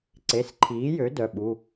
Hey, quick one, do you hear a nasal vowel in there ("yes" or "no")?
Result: no